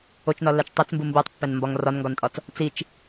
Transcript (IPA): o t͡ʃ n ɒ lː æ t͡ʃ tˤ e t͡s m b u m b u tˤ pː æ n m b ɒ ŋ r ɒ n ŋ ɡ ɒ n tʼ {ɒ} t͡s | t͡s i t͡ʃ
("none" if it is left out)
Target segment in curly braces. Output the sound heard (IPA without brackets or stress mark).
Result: ɒ